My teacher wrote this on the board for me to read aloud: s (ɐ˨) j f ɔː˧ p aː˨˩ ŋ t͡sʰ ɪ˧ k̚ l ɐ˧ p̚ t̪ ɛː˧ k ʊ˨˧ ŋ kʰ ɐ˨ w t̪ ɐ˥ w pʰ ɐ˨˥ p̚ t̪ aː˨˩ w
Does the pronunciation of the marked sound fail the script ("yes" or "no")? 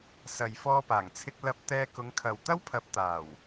no